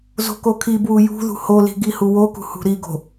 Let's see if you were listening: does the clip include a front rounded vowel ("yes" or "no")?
no